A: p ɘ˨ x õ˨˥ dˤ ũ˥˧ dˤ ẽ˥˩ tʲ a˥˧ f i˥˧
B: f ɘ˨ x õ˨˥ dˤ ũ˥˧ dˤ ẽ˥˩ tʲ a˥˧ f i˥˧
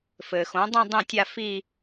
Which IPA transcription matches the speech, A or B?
B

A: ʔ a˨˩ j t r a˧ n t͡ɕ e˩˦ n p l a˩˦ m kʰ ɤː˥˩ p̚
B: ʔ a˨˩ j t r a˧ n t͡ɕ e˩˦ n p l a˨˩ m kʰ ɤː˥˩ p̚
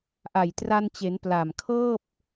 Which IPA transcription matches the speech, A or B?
B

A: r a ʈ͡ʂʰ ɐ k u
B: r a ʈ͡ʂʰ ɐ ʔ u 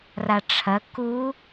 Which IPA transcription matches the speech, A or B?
A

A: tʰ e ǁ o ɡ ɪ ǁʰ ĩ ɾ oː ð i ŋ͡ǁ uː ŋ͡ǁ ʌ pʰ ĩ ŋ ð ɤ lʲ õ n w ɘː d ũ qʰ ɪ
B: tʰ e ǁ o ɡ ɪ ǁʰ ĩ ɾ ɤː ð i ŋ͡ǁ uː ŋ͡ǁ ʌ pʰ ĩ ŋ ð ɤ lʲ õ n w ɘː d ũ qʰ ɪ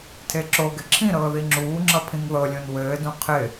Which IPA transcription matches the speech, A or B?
B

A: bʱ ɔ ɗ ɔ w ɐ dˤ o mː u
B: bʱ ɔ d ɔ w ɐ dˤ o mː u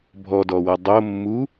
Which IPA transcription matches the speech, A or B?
B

